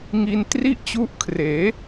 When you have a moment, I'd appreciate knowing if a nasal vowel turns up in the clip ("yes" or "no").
no